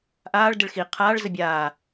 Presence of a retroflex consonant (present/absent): present